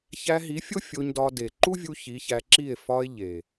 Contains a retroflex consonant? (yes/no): no